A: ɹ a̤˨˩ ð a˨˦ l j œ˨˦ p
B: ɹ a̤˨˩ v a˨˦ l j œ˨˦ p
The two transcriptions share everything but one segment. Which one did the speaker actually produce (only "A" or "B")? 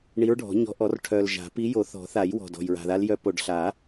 A